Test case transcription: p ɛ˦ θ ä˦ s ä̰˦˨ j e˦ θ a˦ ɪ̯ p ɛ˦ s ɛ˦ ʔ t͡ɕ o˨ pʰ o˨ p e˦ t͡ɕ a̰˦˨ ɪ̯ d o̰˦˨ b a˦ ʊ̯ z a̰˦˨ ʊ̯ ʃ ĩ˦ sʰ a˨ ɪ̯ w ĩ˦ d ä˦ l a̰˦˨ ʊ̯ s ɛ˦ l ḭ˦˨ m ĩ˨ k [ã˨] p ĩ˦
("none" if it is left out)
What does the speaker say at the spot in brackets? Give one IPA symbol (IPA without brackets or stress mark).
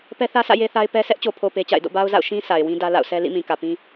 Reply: ä˨